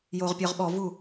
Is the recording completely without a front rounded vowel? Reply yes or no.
no